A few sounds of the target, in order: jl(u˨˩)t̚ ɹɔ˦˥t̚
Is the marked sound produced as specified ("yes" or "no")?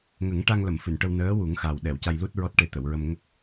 no